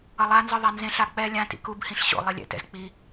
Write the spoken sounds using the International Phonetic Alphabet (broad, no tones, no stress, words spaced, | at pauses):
ʌlˠanzɯ ðˤanzẽɬa k͡pɛ lʲãtḭ kubhĩɬ ɕo̰ lˠelʲɛ̰tɛ̰z k͡pi